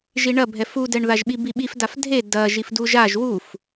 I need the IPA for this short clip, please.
ʒ i ɳ ɐ bʱ ɛ f u d ɛ ɳ ð a ʒ ɓ i b i ɓ i f d a f dʱ e d ɐ ʒ i f d u ʒ a ʒ w u f

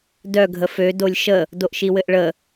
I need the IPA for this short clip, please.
d œ ɡʱ ə f ø d o lʲ ʃ ə | d o ʔ ʃ i w ɘ ʔ ɭ ə

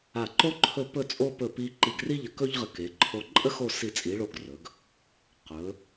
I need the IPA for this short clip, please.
a˧˩ ǃ o˥ ǃʰ ɵ˥˧ p ɵ˥˧ t͡sʼ o˥ p ɵ˧˩ p i˧ ǃ i˧˩ ɡ r i˥ ʎ ə˧ k ɵ˥ ʎ ʁ ə˧ k e˩˧ ǃʰ o˧ ǃʼ ə˥ x o˥˧ s i˧˩ t͡sʼ i˩˧ ɭ o˧˩ ɡ r ɵ˩˧ ɡ | q ɵ˩˧

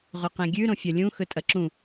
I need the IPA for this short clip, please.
ʁ ɵ q ẽ ɡʲ ʉ ɾ õ fʲ ɐ lʲ ũ x ɵ tʼ ɐ ǁ ũ

